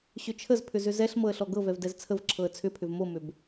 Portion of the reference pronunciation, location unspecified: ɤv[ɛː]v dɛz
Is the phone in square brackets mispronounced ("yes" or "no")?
yes